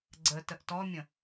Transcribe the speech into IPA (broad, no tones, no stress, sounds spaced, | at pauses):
ɡ͡ǀ ə t ə ʔ t ɔ mʲ ə̃